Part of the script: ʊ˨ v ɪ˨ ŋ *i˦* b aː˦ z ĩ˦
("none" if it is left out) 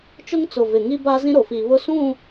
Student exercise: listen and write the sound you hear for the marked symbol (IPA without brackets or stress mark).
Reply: i˦